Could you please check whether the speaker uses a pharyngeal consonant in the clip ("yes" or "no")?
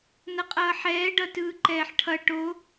yes